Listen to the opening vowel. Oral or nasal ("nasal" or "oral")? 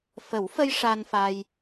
oral